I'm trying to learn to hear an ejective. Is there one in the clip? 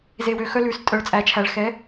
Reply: yes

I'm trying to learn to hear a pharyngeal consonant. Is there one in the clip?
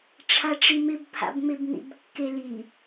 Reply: no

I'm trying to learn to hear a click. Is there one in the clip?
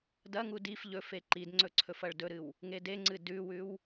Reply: yes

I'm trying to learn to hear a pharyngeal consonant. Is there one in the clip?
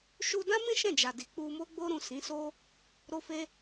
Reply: no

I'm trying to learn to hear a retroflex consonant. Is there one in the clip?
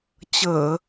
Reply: no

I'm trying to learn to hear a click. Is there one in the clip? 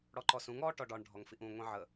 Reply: yes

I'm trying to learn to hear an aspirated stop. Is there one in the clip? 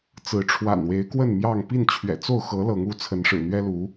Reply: yes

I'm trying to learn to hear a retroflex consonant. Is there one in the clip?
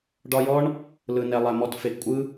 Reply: yes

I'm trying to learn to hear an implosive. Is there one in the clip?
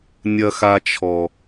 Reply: no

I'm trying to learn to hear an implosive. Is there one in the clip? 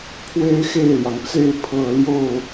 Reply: no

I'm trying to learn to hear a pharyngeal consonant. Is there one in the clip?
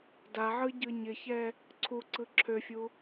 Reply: yes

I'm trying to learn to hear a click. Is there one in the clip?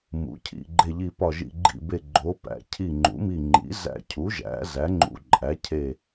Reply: yes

